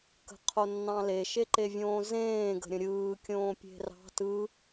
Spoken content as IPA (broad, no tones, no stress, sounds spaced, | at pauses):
k ə̤ qʰ o nː ɑ̃ l e ʃ e ǃ e vʲ õː z ẽː ɡ ə̤ ɾʲ ə̃ ɾʲ ɯː kʲ õː pʲ e̤ r ɑ̤ t ɯ